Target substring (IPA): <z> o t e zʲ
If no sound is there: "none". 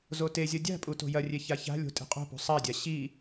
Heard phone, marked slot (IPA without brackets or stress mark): z